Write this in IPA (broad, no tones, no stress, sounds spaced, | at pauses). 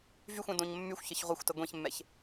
v y xʷ ɛ̃ d õ ɲ mː y xʷ ç ə ç ʁʷ e xʷ t ə ɡʷ ẽ ç mː ɛ ç